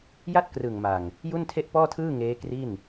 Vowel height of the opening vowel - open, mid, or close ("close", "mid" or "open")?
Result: open